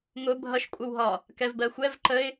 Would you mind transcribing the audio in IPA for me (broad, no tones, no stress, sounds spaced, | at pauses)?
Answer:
ŋ ʊ bʱ ʌ ʃ kʷʼ ə w ɦ ɒ | k ɛ v b ɜ xʷ ɛ v ǃ ə ɪ̯